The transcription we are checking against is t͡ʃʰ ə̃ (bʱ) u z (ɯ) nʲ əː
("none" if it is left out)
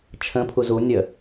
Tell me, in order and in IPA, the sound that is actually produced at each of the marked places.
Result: pʰ, u

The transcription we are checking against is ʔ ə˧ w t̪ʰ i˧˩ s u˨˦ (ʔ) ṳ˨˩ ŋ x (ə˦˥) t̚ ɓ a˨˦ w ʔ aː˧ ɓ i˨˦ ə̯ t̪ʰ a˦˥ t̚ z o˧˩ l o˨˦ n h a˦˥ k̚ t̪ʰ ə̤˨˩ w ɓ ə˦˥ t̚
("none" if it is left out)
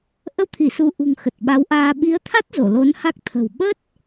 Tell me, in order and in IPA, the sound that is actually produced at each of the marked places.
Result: ʔ, ə˨˩

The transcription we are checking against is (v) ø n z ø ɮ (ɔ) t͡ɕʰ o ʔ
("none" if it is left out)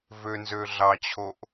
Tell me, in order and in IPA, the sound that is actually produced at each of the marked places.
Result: v, ɑ

